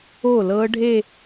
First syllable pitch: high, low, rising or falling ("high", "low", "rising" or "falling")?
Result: falling